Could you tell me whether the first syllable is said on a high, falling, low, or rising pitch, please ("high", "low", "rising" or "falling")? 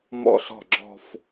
falling